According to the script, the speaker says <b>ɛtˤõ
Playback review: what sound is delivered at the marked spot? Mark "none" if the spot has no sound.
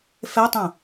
f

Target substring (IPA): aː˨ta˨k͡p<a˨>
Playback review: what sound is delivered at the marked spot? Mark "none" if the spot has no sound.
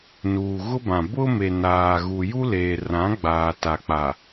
a˨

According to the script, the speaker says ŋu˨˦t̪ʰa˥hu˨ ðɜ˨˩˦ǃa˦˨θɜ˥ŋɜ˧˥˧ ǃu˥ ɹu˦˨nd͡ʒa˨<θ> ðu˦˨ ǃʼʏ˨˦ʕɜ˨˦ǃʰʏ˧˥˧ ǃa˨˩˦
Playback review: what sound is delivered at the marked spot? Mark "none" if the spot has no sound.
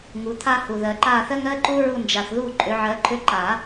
θ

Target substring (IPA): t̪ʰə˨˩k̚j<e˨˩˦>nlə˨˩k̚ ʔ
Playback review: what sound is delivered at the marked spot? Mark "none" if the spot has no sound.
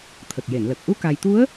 e˨˩˨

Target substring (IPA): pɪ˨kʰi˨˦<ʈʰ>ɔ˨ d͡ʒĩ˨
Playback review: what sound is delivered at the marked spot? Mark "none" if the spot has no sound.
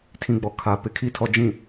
tʰ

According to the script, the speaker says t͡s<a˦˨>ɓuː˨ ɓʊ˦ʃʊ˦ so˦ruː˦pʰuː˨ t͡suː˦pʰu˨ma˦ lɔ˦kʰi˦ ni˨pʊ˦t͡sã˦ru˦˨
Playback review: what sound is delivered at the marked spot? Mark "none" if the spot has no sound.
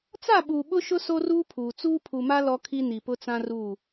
a˦˨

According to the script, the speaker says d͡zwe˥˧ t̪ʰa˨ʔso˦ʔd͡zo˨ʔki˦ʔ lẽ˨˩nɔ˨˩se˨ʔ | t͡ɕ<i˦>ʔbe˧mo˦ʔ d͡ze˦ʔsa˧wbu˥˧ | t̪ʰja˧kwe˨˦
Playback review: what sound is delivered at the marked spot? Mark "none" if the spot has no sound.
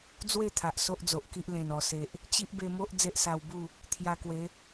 i˦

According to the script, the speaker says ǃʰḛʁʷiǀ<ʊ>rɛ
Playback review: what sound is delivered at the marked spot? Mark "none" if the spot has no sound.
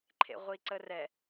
ə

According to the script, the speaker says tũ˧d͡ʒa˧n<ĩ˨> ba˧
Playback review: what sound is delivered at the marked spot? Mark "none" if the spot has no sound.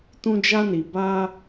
i˨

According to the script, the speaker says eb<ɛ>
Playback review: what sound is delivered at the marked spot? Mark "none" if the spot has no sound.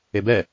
ɛ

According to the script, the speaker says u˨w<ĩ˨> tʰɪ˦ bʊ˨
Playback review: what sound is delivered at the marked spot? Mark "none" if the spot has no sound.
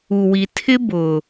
i˨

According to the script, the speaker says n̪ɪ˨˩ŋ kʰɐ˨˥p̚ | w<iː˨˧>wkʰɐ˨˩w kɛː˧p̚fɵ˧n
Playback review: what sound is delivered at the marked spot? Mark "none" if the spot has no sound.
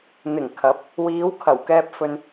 iː˨˧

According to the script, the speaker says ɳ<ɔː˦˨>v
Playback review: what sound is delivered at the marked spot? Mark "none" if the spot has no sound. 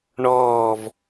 ɔː˦˨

